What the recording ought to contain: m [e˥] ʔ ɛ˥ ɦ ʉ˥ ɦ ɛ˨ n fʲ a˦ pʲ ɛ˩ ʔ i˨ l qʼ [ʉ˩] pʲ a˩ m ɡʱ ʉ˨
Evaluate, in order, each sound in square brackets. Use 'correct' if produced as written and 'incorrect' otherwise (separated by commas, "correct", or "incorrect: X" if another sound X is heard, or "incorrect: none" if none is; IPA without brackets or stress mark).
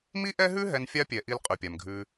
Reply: incorrect: i˥, correct